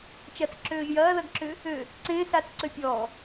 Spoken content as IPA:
t͡ʃ ɐ t͡s ǁ øː ʒ j ɐː ð ɐ ɡ ǁ ʏ | ø | ǀ ẽː s a t͡s ǀ ø pʲ ɔː

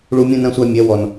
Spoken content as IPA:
ɭ u˧ mʲ ũ˧ n ɐ̃˧ sʷ æ˧ mʲ ɛ˨˦ w ɔ˨ n

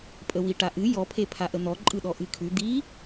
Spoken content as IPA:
pʼ ə w i ʈ a ʔ ɨ j ɔ pʰ e pʰ a ʔ ə n̪ ɔ ǃʼ ɯ ɗ ɔ ʔ ɨ kʰ ʉ d̪ i

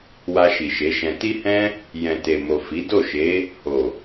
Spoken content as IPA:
w a˧ ʃ i˨ ʃ e˨˦ ʃ ɛ̃˧ t i˦ h ɛ̃˦ | j ɛ̃˨ t e˨ m o˨ f i˨˦ d o˦˨ ʃ e˨˦ | h o˨

